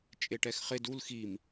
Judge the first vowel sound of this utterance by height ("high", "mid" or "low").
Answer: mid